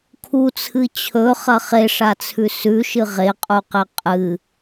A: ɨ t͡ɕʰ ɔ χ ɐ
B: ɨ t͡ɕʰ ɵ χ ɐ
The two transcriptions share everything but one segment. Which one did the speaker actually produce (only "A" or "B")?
B